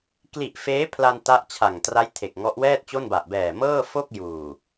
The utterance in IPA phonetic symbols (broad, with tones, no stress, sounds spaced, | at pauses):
k l i˨˩ ʔ f eː˦˥ pʰ l a˧ n t a˦˥ ʔ t͡ɕʰ a˨˩ ŋ t r a˦˥ j tʰ e˨˩ k̚ ŋ ɔ˦˥ ʔ w ɛː˥˩ t̚ t͡ɕ o˥˩ n b a˨˩ ʔ b ɛː˨˩ m ɤː˥˩ f o˥˩ k̚ j uː˨˩